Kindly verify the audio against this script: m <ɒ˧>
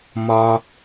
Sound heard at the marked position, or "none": ɒ˧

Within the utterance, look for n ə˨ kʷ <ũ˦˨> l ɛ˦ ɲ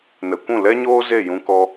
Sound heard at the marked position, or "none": ũ˦˨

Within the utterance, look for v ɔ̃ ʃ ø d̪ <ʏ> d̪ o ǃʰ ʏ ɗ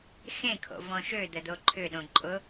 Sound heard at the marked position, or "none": ə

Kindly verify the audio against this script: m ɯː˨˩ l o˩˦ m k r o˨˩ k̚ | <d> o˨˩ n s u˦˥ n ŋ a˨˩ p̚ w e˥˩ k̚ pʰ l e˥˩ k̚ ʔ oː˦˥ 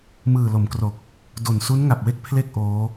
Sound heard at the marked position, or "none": d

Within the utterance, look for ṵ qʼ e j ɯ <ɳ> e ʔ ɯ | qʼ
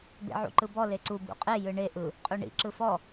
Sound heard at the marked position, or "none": ɳ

